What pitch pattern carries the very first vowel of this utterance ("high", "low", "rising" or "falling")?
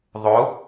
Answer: rising